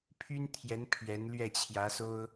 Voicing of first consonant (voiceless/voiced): voiceless